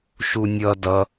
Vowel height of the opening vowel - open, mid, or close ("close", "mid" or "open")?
close